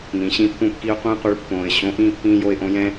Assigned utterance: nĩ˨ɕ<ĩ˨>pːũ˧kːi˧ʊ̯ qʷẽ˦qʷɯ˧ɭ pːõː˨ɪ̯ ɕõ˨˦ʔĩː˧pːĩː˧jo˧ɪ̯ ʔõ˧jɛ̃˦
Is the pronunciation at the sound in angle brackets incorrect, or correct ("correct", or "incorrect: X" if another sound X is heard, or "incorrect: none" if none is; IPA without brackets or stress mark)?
incorrect: ĩ˧